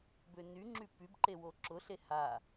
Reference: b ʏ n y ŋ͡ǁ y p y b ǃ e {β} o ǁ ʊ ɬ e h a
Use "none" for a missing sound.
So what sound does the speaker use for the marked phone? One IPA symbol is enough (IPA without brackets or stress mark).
w